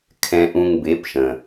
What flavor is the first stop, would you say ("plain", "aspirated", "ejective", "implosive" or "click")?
aspirated